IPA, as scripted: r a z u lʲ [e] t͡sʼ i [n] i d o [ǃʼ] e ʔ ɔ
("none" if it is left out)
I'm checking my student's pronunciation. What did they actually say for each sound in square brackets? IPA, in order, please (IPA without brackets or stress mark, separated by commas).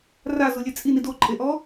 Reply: e, n, ǃʼ